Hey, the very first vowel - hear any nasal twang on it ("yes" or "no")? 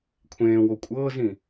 yes